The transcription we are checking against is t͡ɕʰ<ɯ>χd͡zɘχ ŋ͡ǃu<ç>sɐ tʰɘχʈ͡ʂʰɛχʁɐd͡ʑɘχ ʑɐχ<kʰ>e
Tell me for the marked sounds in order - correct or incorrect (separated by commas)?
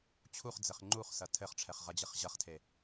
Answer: incorrect, incorrect, incorrect